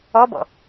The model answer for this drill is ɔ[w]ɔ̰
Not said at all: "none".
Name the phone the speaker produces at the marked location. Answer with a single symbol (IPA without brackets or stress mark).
b